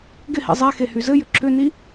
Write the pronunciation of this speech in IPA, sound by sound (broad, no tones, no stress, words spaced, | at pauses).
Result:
ɡɪhḭ zˤe xehyzɘjʏ ǁʏni